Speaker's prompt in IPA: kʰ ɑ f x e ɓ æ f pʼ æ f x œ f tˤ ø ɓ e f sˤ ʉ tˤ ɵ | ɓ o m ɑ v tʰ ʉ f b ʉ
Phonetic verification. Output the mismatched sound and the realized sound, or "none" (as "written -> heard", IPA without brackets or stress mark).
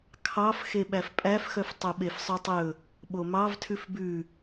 none